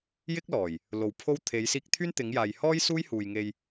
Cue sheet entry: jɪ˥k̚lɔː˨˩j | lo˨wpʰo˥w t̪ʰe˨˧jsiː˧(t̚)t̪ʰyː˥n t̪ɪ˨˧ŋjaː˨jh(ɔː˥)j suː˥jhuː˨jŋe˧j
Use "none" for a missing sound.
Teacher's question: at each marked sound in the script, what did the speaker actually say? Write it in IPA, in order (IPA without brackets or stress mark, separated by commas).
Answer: k̚, ɔː˥